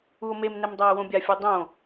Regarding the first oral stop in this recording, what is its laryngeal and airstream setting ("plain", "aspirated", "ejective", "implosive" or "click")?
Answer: plain